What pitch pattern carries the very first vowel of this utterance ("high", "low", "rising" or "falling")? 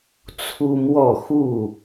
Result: high